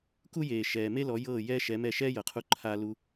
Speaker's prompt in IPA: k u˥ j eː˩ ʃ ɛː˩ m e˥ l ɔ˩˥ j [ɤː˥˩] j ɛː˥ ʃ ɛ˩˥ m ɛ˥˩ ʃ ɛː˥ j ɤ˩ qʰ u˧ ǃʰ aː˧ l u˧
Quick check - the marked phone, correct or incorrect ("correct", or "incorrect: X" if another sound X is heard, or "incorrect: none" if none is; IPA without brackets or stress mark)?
correct